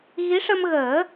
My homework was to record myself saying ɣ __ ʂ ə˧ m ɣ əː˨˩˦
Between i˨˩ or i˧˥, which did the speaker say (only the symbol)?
i˧˥